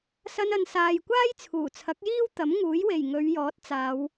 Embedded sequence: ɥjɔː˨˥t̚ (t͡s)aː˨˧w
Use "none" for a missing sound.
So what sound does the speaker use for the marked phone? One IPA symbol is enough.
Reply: t͡s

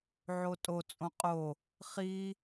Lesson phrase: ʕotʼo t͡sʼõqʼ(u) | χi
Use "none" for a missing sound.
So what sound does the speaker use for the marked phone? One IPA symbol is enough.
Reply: o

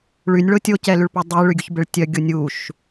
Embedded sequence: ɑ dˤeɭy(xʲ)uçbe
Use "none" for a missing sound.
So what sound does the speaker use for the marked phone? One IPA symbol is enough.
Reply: ɡʲ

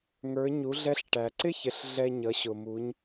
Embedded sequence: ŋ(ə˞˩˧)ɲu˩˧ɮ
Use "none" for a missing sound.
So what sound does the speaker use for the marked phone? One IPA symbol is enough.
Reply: ə˞˩˧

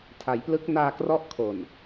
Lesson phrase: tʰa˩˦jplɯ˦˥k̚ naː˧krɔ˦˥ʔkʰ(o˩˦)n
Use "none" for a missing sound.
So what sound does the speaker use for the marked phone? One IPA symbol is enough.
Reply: o˨˩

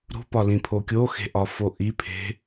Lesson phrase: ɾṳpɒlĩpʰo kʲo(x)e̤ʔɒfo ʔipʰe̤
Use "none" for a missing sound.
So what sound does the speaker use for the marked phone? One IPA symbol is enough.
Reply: x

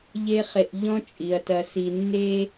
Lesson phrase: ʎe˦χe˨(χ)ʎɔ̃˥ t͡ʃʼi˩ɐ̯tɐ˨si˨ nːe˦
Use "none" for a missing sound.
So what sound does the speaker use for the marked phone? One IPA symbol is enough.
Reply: ʔ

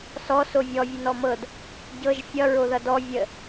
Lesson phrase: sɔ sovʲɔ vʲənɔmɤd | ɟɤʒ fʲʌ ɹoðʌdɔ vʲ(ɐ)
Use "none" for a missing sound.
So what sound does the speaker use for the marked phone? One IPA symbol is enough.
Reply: ə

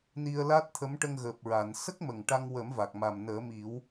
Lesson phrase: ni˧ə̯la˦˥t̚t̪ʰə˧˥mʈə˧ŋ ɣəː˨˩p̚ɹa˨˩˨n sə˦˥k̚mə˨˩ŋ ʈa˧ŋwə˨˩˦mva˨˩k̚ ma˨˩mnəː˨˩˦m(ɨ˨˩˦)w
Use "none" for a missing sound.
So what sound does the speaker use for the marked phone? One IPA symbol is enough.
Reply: i˨˩˦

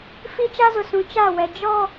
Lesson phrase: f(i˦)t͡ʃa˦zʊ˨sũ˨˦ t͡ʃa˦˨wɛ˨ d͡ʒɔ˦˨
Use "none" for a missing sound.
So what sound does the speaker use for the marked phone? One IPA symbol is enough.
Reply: i˦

